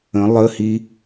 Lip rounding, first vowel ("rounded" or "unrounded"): unrounded